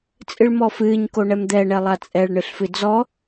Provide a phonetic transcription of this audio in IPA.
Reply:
t͡sʼ ɨ ɭ m ɔ f ɨː ɲ k o ɳ ɛ m d̪ ɛ ɳ ɛ lˠ a t͡sʼ ɛ ɭ ɳ ɨ ɬ f ɨ d͡z ɔ

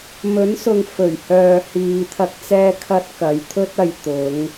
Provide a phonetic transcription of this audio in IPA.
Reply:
m ɵ˨˥ n s ʊ˨ ŋ f ɵ˨˩ ɥ h œː˨ h iː˨ t̪ʰ ɐ˧ k̚ t͡s ɛː˧ kʰ ɐ˧ t̚ k ɐ˨˧ j t̪ʰ ɵ˥ t̚ ɐ˨ j t̪ ʊ˨˧ ŋ

